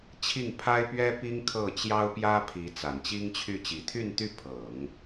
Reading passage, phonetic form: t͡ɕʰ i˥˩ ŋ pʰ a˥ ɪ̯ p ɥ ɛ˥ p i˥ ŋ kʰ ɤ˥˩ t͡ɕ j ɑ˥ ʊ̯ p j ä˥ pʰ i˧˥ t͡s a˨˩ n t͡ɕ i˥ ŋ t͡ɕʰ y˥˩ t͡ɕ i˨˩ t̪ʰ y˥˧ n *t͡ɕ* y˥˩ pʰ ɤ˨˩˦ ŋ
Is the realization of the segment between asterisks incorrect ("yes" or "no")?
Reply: yes